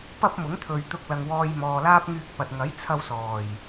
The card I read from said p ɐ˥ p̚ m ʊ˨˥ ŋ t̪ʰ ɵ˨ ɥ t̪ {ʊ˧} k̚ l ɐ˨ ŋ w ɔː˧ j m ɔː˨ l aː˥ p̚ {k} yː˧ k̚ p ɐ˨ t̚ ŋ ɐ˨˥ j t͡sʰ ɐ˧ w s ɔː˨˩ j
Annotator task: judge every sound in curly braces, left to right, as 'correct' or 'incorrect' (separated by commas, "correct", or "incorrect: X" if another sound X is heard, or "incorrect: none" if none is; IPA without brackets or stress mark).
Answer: correct, incorrect: ŋ